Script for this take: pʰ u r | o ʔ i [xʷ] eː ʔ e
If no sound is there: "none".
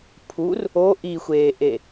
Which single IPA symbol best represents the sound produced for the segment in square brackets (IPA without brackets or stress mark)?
xʷ